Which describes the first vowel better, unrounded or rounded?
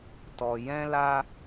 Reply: rounded